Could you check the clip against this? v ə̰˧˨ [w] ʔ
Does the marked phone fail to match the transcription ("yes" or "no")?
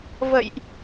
yes